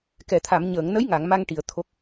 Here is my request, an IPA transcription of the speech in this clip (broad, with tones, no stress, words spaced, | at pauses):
kɛ˨˩˨t̪ʰa˨˩˨m ɲəː˨˩˨ŋnə˧˥j ŋa˨˩˨ŋma˧ŋ ʈi˨˩˨ə̯ t̪ʰo˨˩k̚